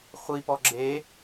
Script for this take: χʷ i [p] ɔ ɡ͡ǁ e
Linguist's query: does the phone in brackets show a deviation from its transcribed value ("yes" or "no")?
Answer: no